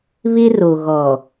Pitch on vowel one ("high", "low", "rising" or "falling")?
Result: high